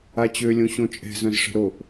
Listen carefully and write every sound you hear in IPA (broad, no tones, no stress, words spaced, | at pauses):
at͡ɕø lʲõɕõt͡ʃʼɛ̤ zœ̃zʂə̤ɾoʔ